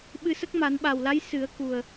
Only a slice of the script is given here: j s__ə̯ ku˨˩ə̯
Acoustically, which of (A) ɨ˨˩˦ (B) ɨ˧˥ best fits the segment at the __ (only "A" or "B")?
A